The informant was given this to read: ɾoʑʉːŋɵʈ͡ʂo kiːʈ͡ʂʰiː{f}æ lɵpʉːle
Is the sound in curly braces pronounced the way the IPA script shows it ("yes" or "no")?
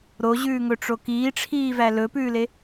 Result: no